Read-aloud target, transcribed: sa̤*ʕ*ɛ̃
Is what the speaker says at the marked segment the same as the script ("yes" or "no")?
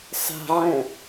yes